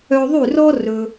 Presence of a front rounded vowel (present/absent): present